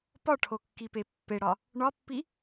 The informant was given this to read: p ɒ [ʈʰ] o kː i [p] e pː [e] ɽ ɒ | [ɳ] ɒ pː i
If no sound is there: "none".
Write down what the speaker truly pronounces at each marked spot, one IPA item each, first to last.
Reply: ʈʰ, p, e, ɳ

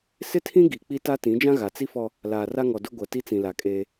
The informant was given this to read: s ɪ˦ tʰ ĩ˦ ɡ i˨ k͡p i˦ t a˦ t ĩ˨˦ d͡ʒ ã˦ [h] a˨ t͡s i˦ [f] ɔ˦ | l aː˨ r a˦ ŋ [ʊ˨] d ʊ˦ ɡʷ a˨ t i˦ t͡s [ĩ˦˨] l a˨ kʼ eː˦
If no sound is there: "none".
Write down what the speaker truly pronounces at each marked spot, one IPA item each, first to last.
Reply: ɣ, f, ɔ˨, ĩ˨

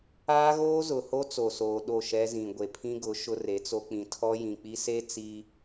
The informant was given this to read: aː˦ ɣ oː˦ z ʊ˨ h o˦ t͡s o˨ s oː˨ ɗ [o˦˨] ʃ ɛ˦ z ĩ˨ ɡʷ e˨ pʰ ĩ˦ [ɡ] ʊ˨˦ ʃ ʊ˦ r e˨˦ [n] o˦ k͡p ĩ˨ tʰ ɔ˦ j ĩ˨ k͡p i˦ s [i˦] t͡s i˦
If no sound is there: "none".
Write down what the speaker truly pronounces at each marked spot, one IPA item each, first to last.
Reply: o˦˨, ɡ, t͡s, e˦

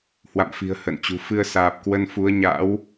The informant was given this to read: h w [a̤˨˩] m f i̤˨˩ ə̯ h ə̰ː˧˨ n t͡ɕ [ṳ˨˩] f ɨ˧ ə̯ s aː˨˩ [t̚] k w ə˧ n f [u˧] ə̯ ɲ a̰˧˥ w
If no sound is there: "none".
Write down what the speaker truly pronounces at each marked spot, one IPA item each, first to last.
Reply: a̰˧˨, ṳ˨˩, p̚, u˨˦

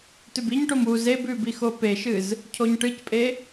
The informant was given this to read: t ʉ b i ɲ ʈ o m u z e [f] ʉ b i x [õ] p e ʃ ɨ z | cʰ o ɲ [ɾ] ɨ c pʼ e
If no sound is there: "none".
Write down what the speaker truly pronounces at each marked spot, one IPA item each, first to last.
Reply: b, o, ʈ

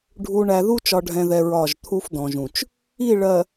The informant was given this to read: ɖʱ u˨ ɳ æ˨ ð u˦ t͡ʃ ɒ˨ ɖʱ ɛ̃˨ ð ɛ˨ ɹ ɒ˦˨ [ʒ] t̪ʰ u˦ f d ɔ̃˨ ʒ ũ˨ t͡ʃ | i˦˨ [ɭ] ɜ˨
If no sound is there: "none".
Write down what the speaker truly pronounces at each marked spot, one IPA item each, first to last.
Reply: ʒ, ɭ

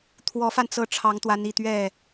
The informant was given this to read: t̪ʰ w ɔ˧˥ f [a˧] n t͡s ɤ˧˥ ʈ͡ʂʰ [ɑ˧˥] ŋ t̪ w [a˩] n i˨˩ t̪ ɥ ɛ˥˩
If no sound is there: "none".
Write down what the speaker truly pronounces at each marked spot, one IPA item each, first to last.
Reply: a˧, ɑ˧˥, a˧˥

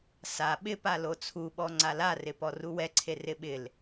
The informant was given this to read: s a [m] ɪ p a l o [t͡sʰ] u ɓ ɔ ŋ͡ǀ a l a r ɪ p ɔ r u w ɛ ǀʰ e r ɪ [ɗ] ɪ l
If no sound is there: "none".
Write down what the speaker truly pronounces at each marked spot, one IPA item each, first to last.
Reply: ɓ, t͡sʰ, ɓ

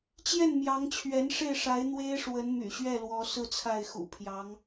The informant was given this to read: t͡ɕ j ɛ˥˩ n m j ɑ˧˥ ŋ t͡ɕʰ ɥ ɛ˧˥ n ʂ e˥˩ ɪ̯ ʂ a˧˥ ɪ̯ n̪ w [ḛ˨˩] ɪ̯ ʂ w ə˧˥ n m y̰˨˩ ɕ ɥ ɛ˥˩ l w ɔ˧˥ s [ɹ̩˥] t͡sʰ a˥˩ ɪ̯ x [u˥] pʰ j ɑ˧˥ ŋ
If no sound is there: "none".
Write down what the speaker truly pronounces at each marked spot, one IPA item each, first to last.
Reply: e˥, ɹ̩˥˧, ṵ˨˩

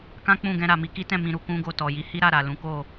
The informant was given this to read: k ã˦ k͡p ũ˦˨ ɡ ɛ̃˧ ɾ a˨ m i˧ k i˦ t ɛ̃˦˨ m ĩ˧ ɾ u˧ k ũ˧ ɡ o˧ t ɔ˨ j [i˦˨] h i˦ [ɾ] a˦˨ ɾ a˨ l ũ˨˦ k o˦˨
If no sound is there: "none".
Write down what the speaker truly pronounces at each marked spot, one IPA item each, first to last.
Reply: i˨˦, ɾ

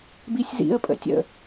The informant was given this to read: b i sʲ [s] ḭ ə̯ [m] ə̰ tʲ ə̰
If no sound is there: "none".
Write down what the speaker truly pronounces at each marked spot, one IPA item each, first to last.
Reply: z, pʼ

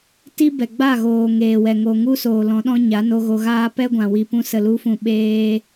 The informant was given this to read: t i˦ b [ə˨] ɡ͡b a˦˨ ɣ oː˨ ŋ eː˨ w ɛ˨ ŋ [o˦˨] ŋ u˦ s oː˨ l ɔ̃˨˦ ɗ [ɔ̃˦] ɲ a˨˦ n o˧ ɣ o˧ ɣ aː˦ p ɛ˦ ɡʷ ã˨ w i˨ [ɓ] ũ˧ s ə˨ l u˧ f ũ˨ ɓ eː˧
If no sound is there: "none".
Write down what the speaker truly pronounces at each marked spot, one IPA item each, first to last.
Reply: ɛ˨, o˨, ɔ̃˦, p

